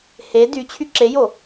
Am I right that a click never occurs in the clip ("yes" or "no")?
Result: no